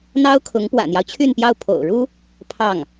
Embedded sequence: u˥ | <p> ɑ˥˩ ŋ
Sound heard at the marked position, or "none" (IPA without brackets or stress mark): pʰ